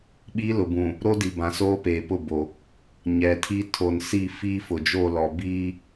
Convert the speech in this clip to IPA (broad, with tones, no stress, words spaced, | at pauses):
ɓi˦ lʊ˨bũ˨ | ɾo˦di˨bã˨ soː˦peː˨pʊ˦˨ bo˨ | ɲɛ˨tʰi˦ tʰo˨nsi˦˨ fiː˦fʊ˨d͡ʒo˦˨lɔ˨ biː˦